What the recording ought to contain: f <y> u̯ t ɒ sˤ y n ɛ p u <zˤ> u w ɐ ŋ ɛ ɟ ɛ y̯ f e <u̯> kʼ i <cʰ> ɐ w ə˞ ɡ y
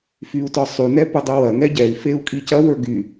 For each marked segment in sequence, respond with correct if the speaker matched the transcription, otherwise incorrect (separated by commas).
correct, incorrect, correct, incorrect